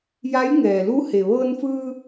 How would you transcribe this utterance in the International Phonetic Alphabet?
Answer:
ja˧˥jŋɛː˩lu˧˥ he˩ʋɤː˧nfɯː˧

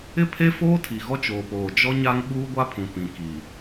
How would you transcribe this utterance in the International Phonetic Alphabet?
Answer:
ɪ˦pʰe˦foː˦ tʰi˨ɣɔ˦t͡ʃoː˨poː˨ d͡ʒɔ˦ ɲa˦ŋ ɓuː˦ɡʷa˦pʰũ˨ pĩ˨ki˨

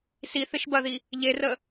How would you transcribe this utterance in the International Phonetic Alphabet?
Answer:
siθɪʃ bɐði | ʎerə

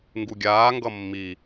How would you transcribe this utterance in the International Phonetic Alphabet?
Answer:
ŋɡuɡʲaː ŋɡʌmːi

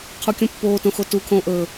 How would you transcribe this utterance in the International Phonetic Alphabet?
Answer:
qʰukʲũpːoː tõxotukʰõː ʔɵː

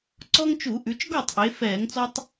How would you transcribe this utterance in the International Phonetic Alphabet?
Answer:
ǀɔ˦ŋt͡ʃu˧˩˧ʔʉ˩˧t͡ʃ ɡɔ˥˩tˤʔe˩˧ fɛː˧˩˧ŋt͡sɔ˦tˤ

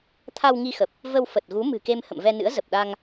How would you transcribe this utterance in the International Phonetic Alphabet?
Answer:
t̪ʰa˧wŋi˧xə˨˩p̚ | və˧w fə˨˩t̚ɣu˨˦ mɨ̤˨˩ke˧m hə̰˧˨mvɛ˧nɨ̰˧˥ə̯ zə˨˩p̚ɗa˧ŋ

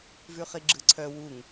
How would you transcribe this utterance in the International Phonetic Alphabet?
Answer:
vʉχiɡ͡ǁɯǀʰœ wuŋ

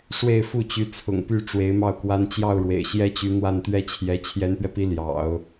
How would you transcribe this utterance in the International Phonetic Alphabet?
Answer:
ʂwe˥˧ɪ̯fu˥˩t͡ɕy˧˥ t͡sʰʊ̰˨˩ŋpy˥˩ ʈ͡ʂwe˧˥ɪ̯mɑ˥˩ʊ̯kwa˥n t͡ɕjɑ˥˩ʊ̯ɻwḛ˨˩ɪ̯ɕjɛ˥t͡ɕy˧˥ n̪wa˥˩nt̪ɥɛ˥t͡ɕʰjɛ˧˥ t͡ɕʰjɛ˧˥npɥɛ˧pi˧˥ ljɑ̰˨˩˦ʊ̯

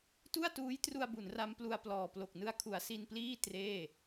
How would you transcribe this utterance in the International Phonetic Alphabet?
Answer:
tu˥˩a̯tuː˦˥jtru˧a̯ bu˩˦nra˦˥m plu˧a̯plɔː˨˩ plo˨˩k̚nɯ˦˥a̯kʰu˩˦a̯ si˧npliː˥˩ treː˥˩

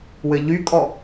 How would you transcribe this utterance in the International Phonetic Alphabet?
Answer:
wɘʎykʼɔ

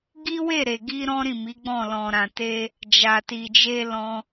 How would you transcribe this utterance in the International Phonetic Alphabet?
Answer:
ɡi˦we˦˨ɾe˨ɡi˧ ɾɔ̃˦ɾĩ˦˨mi˨˦ɡ͡bɔ̃˦˨ lɔ̃˨ɾã˨te˧ | d͡ʒa˨ti˨d͡ʒe˧ lɔ̃˧

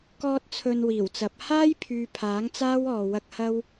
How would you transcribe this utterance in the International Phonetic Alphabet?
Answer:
kɔː˧t̚ t͡sʰɵ˧nwiː˨˩wt͡sɐ˨˥p̚ haː˥jpʰyː˨ pʰaː˨˥ŋt͡saː˥wɔː˨wɐ˧k̚ hɐ˥w

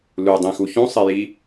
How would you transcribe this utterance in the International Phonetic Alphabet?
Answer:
ludˤĩxu çũsˤiji

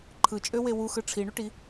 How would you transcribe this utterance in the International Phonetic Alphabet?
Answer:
ǃʰɯt͡ʃʼøwe wuxɯ ʈ͡ʂʰiɳyʈi

